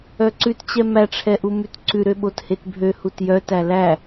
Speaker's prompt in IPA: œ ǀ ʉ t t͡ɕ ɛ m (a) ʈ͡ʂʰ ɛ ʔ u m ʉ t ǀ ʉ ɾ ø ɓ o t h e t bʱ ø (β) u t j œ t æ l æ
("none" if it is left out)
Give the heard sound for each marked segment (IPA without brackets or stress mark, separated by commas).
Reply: æ, h